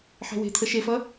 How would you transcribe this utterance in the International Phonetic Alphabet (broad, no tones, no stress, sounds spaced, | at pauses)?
ħ e̤ w e̤ t̪ʰ ə ʃ e f ʌ